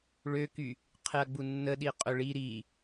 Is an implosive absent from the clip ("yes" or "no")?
no